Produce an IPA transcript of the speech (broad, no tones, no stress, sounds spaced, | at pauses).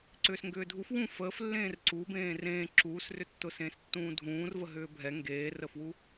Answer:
ǀ ʏː s ŋ ɡ ʏː dʱ u f w ũ f əː f lː ẽː r ǀ u b ẽː r ẽː ǁ uː s r ʏ tː ʊ s ẽː s tː ũː dʱ ũː r v ə ɦ ʏː bʱ ɛ ŋ ɡ eː r ə f w u